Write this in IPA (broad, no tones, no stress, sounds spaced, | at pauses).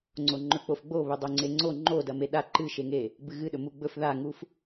ŋ͡ǀ o ŋ͡ǃ ɵ k͡p o f ɡ͡b o β ɵ dˤ o ŋ͡ǀ e ŋ͡ǀ o ŋ͡ǃ o d ɐ m e ɗ a ǃ ɨ ʃ e ŋ e | b ɨ ɣ ɨ ɗ ɵ m u ɡ͡b ɵ f ð a ŋ u f